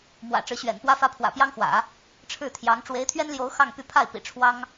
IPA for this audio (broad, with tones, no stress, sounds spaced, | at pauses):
m w ä̰˨˩ ʈ͡ʂ ɻ̩˧˥ ɕ ɥ ɛ̰˨˩ n p w ä˥ f ä˥ pʰ w ä̰˨˩ p j ɑ˥ ŋ x w ä̰˨˩˦ | ʈ͡ʂʰ ɻ̩˥˩ t̪ʰ j ɑ˧˥ ŋ ʈ͡ʂ w e˧˥ ɪ̯ t̪ʰ ɥ ɛ˥ n l j o˧˥ ʊ̯ x ɑ˥˧ ŋ p y˥˧ pʰ a˥˩ ɪ̯ p ḭ˨˩ ʈ͡ʂʰ w ɑ˥ ŋ